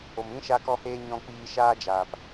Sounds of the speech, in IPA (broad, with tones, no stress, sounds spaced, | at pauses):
o˨ m ĩ˦ ʃ a˧ k ɔ˧ h eː˧ ɲ ɔ̃˧ k͡p iː˧ ʃ aː˦ d͡ʒ aː˨ p